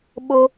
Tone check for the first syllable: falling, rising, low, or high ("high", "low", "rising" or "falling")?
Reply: high